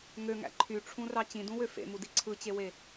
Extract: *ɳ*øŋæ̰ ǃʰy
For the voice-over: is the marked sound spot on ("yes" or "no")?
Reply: no